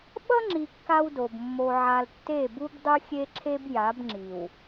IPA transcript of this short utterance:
ɓ ʌ˦ ŋ͡ǁ i˨ kː a˦ w d o˨ b mː o˨ ʕ a˨ l tː e˦˨ b u˦ b dˤ ɯ˦ xʲ e˦ ǁʰ e˦ b j a˨˦ b ŋ͡ǁ i˨ w

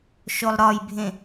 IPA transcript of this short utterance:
ʃ o lˠ ɾ ɒ j bʱ ẽ

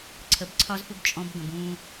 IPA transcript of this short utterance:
ǀʰ ə˨ b ǀʰ ɒ˦ z f u˦ ɡ t͡ʃʼ ɔ̃˦ b ɡ ə̃˨ b ũ˦

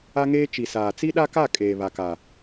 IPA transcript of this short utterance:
a˦ ŋ eː˦ t͡ʃ i˨ s aː˨ t͡s i˦ ɗ a˦ k a˦˨ kʼ eː˨ β a˨ k a˨

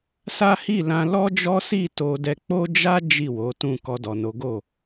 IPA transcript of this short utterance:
s a˦ h i˦˨ l ã˧ l ɔ˦ d͡ʒ ɔ˦ s i˦˨ t o˧ d ɛ˧ k͡p o˦ d͡ʒ a˦ d͡ʒ i˦˨ w o˨˦ t ũ˦˨ k ɔ˧ d ɔ˨ n o˨˦ ɡ o˦˨

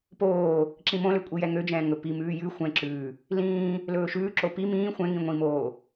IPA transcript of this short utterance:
p oː | ǁ ĩ m õ l ø kʷʼ i j ɛ ŋ ø d͡ʒ ɛ̃ː ŋ ɵ p i m ʉː j ʉ xʷ ɛ̃ ǁ ʉː | l ĩː | l ɵː ʃ ʉː ǁ o p i m ĩː xʷ ɛ̃ ŋ ĩ ŋʷ ĩ m oː

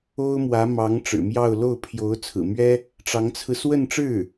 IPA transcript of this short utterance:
o˥ ʊ̯ m w ä˧˥ m ɑ˧˥ ŋ ʈ͡ʂ ɻ̩˨˩ m j ɑ˥˧ ʊ̯ l o˥˩ ʊ̯ pʰ j o˧˥ ʊ̯ t͡sʰ ɹ̩˨˩ m ɥ ɛ˥ | ʈ͡ʂ ɑ˧˥ ŋ t͡sʰ ɹ̩˧ s w ə˥˧ n ʈ͡ʂ ɻ̩˥˩

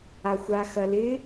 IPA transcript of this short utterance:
a xʷ a x ɐ l ɪ

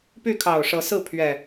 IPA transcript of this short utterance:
p y˥˨ kʰ ɑ˨˩ ʊ̯ ʂ ɤ˨˦ s ɹ̩˥˨ pʰ ɥ ɛ˨˩

